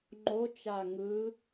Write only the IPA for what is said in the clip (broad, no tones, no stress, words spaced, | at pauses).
ŋ͡ǃot͡ʃa ŋɯ